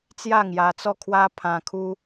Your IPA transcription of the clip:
t͡s j a˥˧ ŋ j a˧ t͡s ɔ˥˧ kʰ w a˦ pʰ ã˧ kʰ u˦

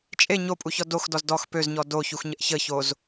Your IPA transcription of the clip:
t͡ʃʼ e ɲ o pʼ u ç ɔ d o x d ɔ z d ɔ x p ø z ɲ ɔ d o ç u x ɲ ə ʔ ç ə ç o z

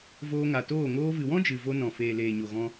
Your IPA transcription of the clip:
v oː˧ ŋ a˨ t oː˦˨ ŋ oː˧ v ɨ˨ w ɔ̃˦ d͡ʒ ɨ˨ v o˧ n ɔ̃˨ f eː˨ l eː˨ ɲ o˨ ɣ ɔ̃˧

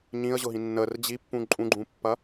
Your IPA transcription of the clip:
ɲ ĩ ə̯ ʑ ʊ ɦ ĩ nː ə r d͡ʑ i pː ũ ǃʼ ũ ɡ͡ǃ ũ pː ɐ

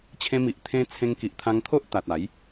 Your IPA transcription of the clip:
t͡ɕʰ ẽ˧ m i˨ ʔ t̪ʰ ẽ˧ t͡sʰ ẽ˧ ŋ k i˨ ʔ t̪ʰ ã˧ ŋ t̪ʰ o˦ ʔ t̪ a˨ t̚ a˨˦ j

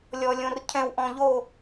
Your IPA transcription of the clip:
lʲ ɔ˨ lʲ õ˨ r cʰ ɛ̃˨ w ʔ ɔ̃˨ ʎ o˦˨

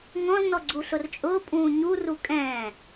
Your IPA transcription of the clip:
ŋ ɔ̃ z n ɔ ɡ͡ǀ u ɬ ʊ r t͡ʃʼ ʊː pʼ ũː ɲ u r u kʼ ɛ̃ː

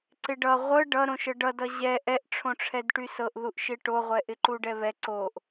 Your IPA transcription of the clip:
ǀ ɪ ɖ ʌ ʁʷ ɤ ɖ ʌ ɾ õ ʃ ɤ ɖ ʌ d ʌ ʑ ɛ ʔ ɛ ʔ ʈ͡ʂʰ õ ʈ͡ʂʰ ɛ d ʈ y s ɤ ʔ ð u ʔ ʃ ɪ ʈ o ʁʷ ɛ ʔ ɪ ǃ u ɖ ɛ β ɛ ǀ o ʔ

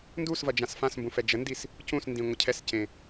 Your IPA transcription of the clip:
n d u s v ɐ d͡ʒ ã s f ã s m b ũ f ɛ d͡ʒ ə n d i s | c ũ s n d ĩ ŋʷ ə cʰ ɛ s c ẽ

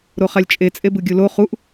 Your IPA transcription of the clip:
ɾ o χ a lʲ t͡ʃʼ e t͡sʼ e b ɯ ɡʲ u l o χ u ʔ

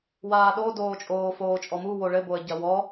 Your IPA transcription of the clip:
w aː ɗ o d oː t͡ʃʼ oː f oː t͡ʃʼ ɔ m u w o ɭ ɘ b o ə̯ ɟ ɐ w ɔ

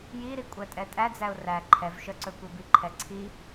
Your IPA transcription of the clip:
j i ɾ i kʷʼ æ tʼ ɛ tʼ æ d͡z æ ʊ̯ r æ ǃʰ ɛ v ʃ œ ǀ ɵ kʷ i b i ǃʰ ɛ ǀʰ i

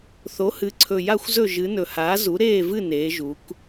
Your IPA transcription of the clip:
θ o˩˥ h ɨ˩˥ ǀʰ ɵ˨˩ j a˦˨ xʷ z ɵ˦˨ ʒ ɨ˩˧ n ɵ˨˩ h aː˩˥ z u˩˥ ɾ eː˦˨ v ɨ˦˨ n eː˩˧ ʒ u˩˧ k

